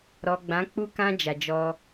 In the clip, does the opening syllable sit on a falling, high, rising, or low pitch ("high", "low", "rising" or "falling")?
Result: low